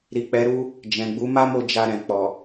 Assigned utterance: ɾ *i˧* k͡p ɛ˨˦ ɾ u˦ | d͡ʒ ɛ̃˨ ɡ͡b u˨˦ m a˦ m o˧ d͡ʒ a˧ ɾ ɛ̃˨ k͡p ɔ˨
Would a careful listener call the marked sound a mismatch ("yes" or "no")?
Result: yes